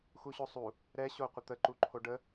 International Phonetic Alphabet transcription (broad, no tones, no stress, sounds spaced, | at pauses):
x u ɕ o sˤ u | ɾ ɛ ɕ o qʷ ɪ t̪ ə ǃ u ǃʰ o ɖ ə